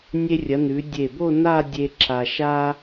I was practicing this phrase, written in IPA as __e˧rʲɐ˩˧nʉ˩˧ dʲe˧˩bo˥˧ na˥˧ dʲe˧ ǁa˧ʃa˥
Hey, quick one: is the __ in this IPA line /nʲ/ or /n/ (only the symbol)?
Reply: nʲ